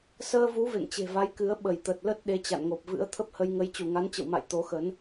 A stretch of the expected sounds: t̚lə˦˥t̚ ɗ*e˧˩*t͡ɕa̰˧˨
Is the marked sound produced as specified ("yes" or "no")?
no